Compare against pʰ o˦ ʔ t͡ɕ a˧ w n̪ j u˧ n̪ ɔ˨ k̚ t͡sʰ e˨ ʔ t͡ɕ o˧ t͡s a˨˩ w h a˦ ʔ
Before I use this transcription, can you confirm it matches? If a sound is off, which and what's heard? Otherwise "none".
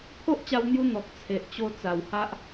none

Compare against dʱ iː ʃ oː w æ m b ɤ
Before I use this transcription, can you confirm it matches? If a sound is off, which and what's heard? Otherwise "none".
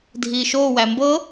none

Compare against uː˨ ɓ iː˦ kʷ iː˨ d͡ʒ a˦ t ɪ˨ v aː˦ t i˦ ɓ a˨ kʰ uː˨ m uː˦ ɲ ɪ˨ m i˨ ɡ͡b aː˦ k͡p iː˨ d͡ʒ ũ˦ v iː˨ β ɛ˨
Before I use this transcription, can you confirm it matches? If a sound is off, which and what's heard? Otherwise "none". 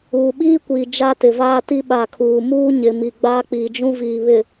ɛ˨ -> ɪ˨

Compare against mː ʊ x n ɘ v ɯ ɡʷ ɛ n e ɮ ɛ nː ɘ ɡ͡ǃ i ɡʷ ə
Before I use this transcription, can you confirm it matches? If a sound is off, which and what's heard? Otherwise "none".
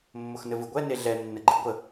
none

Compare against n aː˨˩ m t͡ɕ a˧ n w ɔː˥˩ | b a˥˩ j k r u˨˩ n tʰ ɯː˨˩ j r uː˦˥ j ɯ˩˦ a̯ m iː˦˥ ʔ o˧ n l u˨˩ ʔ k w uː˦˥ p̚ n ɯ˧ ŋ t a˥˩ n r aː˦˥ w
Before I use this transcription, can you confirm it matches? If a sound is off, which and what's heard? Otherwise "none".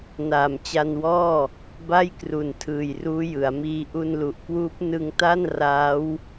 o˧ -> u˧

